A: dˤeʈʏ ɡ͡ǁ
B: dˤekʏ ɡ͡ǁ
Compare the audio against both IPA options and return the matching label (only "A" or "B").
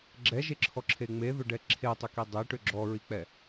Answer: A